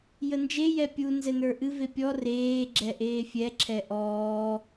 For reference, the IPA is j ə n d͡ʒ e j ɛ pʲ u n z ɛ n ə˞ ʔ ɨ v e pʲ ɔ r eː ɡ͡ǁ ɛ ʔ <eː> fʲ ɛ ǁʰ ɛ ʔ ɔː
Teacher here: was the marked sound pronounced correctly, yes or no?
yes